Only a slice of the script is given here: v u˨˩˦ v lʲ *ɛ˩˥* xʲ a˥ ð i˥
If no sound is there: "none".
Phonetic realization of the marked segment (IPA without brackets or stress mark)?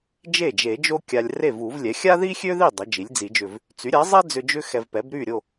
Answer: ɛ˩˥